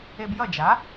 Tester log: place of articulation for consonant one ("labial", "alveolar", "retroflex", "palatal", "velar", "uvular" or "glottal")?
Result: labial